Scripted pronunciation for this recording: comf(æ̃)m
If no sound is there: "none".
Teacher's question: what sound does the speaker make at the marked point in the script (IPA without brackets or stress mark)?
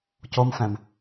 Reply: æ̃